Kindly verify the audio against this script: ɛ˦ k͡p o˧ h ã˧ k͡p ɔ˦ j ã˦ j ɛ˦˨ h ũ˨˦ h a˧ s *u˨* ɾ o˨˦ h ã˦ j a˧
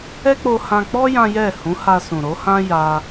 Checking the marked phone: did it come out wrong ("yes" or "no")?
yes